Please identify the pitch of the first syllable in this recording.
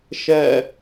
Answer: falling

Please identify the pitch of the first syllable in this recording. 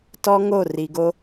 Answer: high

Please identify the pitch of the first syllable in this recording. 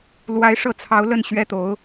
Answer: rising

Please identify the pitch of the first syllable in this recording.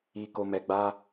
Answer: high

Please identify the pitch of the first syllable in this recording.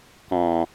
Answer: low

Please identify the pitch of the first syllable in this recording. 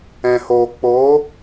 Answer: low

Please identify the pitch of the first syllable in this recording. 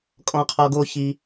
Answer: low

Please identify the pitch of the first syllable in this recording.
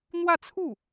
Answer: falling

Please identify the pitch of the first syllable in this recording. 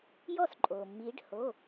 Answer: falling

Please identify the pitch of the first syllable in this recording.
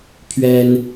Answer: high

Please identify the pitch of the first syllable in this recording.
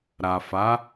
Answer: low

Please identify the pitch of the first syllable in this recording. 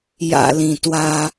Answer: low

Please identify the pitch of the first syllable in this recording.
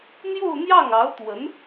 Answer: falling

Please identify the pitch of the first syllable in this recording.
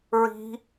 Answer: high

